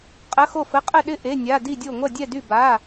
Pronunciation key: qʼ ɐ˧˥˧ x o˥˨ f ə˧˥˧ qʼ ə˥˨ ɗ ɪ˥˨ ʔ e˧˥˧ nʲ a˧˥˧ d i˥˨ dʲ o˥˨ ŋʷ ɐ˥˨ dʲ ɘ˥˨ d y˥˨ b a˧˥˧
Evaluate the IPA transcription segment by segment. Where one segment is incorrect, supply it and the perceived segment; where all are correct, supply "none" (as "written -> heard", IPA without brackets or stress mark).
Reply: ɘ˥˨ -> ɛ˥˨